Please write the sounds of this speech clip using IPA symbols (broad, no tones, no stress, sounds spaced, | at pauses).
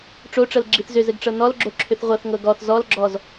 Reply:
ʈ͡ʂ o ʈ͡ʂ ɤ l ɡ͡ǁ i θ z ʏ z ɘ ɡ ʈ͡ʂ ɤ n ɔ l ɡ͡ǁ o ǁʰ ʏ θ ʁʷ ɤ θ ŋ ɤ ɡ ɔ θ z ɔ l ɡ͡ǁ ɔ z